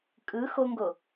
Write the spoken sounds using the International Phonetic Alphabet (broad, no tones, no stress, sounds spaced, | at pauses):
kʼ ɯ x o ŋ ɡ o